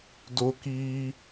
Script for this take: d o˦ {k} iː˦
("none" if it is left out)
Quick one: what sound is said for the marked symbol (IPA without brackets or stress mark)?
k